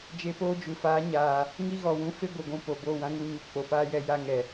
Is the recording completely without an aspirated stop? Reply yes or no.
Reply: yes